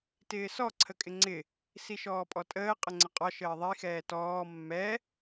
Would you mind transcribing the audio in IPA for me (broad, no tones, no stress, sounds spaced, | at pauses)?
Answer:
t ɪː s ɔ ǀʰ ə kʼ ɪ ŋ͡ǀ ɪ | s i ʃ ɔː pʼ ɔ tʼ əː qʼ ə ŋ͡ǀ ə qʼ ɒ ʃ əː ðˤ i x ɛː t ɔː mː ɛ